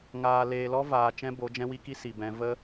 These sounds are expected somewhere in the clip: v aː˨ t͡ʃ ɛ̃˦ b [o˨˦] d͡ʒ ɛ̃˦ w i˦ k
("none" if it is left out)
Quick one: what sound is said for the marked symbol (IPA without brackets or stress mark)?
o˨˦